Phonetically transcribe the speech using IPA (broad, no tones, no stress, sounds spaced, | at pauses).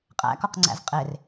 qʼ æ̰ k ɒ q ŋ͡ǀ æ̰ z qʼ e r